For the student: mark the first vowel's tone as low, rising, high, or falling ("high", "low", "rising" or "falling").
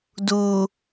low